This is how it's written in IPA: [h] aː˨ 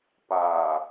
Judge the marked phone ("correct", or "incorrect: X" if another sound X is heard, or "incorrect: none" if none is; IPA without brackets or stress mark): incorrect: p